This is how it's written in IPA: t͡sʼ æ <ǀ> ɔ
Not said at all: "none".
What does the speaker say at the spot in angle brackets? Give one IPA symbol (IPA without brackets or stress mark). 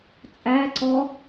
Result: ǀ